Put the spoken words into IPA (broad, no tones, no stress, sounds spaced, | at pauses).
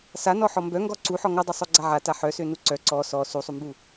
s a n ɔ ħ ɔ m b œ ŋ ɡ ɔ ǀ u ħ ɔ ŋ o dˤ u sˤ o ɡ͡ǀ a ʕ a t a ħ œ s ø n u ǀ œ ǀ ɔ s ɔ s u sˤ u m b u